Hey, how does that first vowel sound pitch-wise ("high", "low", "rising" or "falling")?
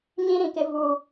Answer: high